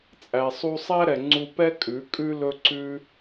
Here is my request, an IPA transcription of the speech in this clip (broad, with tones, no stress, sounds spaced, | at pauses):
t͡sʼ æ˨ sˤ u˧ sˤ æ˦ ɾ ɛ˨ ŋ͡ǀ u˧ p ɛ˦ kʼ ʉ˨˦ kʼ ʉ˦ l ɵ˦ ǀ ʉ˦